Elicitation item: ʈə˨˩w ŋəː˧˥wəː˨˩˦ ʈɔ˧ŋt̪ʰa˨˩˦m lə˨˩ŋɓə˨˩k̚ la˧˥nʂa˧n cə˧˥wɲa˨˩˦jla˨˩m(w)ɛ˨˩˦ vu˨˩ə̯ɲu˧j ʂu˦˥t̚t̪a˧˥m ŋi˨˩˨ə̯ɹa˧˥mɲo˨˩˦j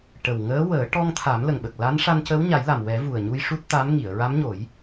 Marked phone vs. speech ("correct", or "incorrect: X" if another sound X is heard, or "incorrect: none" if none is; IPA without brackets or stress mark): correct